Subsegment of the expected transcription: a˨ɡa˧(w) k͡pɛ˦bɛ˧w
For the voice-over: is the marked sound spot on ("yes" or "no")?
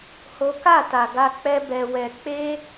no